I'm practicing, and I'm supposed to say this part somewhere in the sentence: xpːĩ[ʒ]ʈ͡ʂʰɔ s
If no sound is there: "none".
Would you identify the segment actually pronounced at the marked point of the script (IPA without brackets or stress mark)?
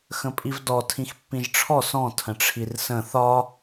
ʒ